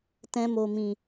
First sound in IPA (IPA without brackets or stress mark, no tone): t